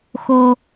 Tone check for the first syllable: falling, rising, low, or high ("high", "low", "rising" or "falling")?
high